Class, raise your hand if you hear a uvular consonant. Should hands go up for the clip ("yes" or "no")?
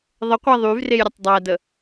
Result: yes